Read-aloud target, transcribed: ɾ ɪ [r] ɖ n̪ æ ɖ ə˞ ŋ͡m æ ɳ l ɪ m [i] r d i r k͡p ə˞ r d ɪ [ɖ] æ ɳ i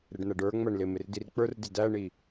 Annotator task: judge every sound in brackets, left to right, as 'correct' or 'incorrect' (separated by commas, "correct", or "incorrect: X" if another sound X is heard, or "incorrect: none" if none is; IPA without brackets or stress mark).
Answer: incorrect: none, incorrect: ɪ, incorrect: d